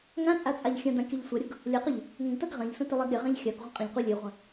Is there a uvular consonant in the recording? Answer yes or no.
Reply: yes